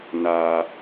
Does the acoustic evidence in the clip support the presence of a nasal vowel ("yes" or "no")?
no